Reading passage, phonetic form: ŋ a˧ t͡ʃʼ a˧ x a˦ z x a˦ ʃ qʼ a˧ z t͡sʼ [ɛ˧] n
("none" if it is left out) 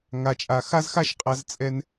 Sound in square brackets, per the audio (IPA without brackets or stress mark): ɛ˧